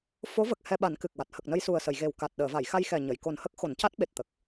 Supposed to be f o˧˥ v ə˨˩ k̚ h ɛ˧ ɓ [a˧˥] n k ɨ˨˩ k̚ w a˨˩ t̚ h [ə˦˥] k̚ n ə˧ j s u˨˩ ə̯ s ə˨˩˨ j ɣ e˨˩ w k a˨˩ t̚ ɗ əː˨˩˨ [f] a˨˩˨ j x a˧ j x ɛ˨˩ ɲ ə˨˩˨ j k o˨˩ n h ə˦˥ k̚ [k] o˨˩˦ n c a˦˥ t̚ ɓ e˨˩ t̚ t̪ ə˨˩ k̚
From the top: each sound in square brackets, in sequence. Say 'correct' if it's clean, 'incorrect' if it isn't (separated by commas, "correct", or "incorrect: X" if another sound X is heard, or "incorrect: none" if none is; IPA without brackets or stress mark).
incorrect: a˨˩˦, incorrect: ə˨˩, incorrect: v, incorrect: x